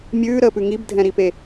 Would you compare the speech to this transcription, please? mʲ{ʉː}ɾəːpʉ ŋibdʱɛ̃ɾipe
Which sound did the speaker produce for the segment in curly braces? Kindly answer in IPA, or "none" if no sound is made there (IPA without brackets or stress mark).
ʉː